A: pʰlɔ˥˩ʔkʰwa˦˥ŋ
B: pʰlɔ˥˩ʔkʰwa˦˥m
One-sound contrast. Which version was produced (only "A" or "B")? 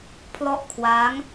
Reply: A